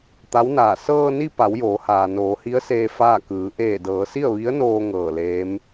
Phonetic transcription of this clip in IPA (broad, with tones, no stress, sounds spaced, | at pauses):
t̪ a˧˥ w n aː˧˩ s ɤː˧ n i˧ p a˩˧ w j oː˩˧ h aː˩ n oː˩˧ h i˧˥ ə̯ s eː˧ f aː˥˨ k ɯː˩˧ ʔ eː˧˩ d ɤː˩˧ s i˥˨ ə̯ ʋ i˧˥ ə̯ n oː˧ ŋ ɤː˧˩ l eː˧˥ m